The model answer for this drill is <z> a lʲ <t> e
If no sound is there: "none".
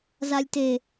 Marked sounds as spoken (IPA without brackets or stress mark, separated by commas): z, t